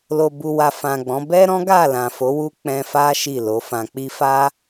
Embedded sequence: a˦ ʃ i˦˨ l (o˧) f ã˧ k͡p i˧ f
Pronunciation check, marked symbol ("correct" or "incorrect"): incorrect